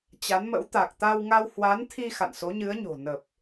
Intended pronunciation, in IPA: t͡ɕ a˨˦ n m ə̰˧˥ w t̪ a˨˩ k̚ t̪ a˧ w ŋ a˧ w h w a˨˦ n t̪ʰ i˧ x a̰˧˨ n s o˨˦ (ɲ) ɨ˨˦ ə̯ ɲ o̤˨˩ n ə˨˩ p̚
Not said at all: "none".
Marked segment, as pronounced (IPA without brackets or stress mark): ɲ